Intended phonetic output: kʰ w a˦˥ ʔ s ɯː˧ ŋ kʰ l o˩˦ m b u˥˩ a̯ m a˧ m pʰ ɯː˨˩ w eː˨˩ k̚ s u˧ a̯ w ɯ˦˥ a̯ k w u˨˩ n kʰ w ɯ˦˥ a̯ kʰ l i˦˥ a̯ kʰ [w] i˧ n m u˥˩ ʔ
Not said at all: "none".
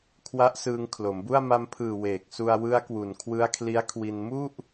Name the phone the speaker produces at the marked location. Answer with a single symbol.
w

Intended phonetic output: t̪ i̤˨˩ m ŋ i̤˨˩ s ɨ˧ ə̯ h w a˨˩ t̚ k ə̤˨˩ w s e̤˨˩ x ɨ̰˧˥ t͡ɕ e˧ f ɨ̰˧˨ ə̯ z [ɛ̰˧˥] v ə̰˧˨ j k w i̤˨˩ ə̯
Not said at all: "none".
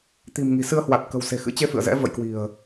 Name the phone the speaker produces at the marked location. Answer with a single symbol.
ɛ̰˧˥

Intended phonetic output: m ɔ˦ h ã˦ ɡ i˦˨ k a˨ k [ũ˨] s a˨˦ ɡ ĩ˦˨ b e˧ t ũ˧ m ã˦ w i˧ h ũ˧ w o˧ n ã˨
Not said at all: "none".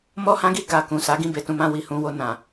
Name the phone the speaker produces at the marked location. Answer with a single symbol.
ũ˨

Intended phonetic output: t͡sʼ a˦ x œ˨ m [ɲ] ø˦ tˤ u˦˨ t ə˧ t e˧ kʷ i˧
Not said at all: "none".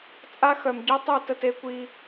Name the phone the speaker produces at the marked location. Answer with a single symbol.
ɟ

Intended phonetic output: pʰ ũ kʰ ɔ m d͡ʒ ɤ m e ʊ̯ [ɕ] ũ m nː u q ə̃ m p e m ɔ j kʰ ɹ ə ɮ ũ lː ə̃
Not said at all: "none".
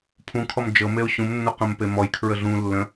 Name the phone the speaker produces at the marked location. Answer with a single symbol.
ɕ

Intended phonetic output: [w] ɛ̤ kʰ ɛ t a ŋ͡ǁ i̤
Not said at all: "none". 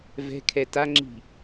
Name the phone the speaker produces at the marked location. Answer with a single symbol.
v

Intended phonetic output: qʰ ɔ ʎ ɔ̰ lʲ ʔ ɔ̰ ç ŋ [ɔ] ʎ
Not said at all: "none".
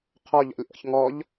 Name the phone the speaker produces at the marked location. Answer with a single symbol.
ɔ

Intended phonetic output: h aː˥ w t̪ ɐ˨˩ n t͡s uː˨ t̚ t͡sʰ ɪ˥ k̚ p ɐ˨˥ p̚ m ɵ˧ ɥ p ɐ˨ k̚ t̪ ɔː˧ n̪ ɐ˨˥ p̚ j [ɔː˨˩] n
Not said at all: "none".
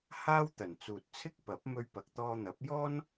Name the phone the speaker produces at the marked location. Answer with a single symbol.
ɔː˥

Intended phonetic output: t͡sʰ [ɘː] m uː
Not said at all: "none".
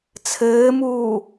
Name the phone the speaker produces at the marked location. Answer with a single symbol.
ɘː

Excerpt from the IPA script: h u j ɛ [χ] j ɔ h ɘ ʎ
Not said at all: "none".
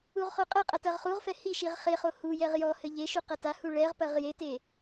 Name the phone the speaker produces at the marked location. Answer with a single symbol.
ʁ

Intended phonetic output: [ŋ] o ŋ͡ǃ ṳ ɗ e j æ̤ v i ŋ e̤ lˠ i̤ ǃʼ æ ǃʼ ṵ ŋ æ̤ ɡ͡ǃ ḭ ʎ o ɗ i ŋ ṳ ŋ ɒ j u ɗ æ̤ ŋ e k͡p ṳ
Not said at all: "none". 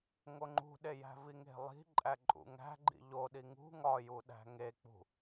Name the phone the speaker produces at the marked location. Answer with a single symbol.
ŋ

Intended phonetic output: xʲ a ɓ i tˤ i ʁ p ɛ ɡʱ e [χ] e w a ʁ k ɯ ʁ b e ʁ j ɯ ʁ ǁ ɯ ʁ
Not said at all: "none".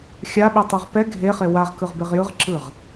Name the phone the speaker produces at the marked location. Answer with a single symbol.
χ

